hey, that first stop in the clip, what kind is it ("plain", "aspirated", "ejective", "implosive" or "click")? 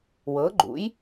click